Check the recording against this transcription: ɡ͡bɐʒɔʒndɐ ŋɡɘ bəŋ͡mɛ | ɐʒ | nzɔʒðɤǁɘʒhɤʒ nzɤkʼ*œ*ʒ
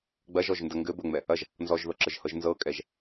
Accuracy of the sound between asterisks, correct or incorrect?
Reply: incorrect